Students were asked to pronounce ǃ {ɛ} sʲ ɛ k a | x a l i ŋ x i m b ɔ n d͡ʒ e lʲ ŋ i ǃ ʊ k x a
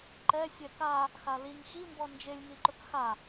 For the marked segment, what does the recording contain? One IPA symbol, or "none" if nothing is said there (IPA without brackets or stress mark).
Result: ɛ